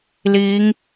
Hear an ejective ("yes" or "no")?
no